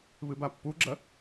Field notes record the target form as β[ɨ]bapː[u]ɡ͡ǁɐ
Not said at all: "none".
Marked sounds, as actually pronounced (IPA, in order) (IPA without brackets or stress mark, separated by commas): ɨ, u